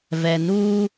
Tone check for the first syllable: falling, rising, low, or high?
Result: low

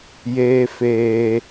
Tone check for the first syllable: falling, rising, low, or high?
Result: high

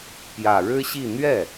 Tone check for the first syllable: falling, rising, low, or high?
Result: low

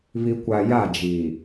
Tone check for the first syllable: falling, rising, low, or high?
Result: low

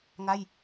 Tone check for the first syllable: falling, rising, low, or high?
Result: falling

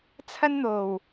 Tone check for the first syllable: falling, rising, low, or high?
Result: high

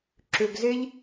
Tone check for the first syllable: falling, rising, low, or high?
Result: low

